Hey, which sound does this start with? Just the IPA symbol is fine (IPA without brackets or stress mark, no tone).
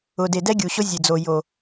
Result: ʊ